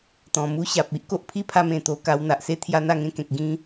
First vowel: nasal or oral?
nasal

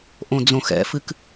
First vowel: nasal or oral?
nasal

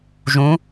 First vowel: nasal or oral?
nasal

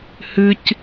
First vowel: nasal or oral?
oral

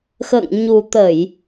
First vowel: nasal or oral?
oral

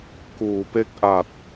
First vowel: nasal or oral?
oral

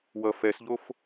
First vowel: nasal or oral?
oral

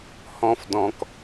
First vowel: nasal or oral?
nasal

